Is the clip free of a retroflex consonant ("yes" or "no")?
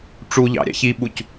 no